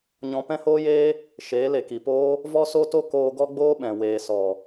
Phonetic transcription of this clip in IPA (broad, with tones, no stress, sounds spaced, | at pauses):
ɲ ɔ̃˧ p ɛ̃˦ h oː˦ j eː˦ | ʃ eː˨˦ l e˨ k i˨ p oː˦ | v ɔ˦ s o˦ t o˦ k oː˧ ɡ ɔ˦ ɡ͡b oː˦ ɓ ɛ̃˨ w eː˨ s ɔ˨